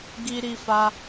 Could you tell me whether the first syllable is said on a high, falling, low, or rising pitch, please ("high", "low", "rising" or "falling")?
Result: high